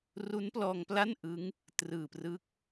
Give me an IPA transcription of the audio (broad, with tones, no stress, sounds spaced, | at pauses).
r u˦˥ n p l ɔː˧ ŋ p l a˥˩ n ʔ ɯ˦˥ ŋ | t r ɯː˨˩ p r ɯ˦˥ k̚